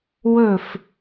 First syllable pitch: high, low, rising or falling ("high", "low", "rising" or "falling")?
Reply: falling